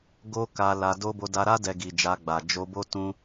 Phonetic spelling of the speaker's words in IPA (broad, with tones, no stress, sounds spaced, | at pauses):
ɡ o˦ k a˧ l a˧ d o˦ b o˧ d a˧ ɾ a˦ d ɛ˧ ɡ i˨ d͡ʒ a˧ ɡ͡b a˨ d͡ʒ o˧ b o˦ t ũ˦